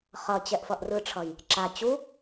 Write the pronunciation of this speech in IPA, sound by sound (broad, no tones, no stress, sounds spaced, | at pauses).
χ ʌ t͡ɕ ɛ ʔ f ʌ ʔ r ɯ ʈ͡ʂʰ ʌ j | ǁ a t͡ɕ u